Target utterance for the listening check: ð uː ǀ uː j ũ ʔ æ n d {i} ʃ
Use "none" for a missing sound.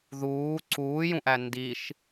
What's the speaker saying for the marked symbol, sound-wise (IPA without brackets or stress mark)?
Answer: i